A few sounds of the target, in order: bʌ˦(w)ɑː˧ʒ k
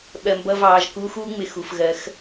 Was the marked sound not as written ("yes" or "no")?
yes